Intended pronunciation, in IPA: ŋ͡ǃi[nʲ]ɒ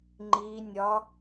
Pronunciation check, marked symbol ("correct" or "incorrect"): correct